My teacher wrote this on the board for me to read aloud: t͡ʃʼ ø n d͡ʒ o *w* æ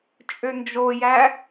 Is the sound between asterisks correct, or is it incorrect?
incorrect